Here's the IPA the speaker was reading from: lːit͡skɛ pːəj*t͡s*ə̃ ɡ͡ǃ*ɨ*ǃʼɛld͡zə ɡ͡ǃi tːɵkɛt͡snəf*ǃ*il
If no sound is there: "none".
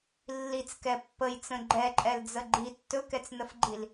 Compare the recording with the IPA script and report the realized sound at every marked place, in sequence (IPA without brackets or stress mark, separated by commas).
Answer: t͡s, ɛ, ɡ͡ǃ